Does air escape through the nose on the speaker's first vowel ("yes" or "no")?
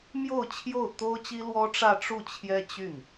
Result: no